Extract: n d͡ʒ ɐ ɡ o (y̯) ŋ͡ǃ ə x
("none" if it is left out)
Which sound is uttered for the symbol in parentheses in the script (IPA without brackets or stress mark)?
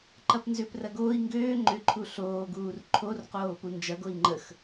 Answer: i̯